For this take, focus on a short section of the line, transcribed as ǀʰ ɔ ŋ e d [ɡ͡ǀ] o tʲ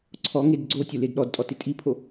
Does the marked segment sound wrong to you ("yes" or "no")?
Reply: no